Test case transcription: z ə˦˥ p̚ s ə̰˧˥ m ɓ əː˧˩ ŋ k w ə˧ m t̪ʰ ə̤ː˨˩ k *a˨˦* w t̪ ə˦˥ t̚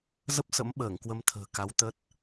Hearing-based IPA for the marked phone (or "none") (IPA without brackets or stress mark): a˨˦